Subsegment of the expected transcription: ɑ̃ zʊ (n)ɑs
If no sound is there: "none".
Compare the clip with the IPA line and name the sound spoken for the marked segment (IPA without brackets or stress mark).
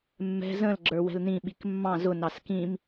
n